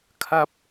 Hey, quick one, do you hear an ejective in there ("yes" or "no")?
no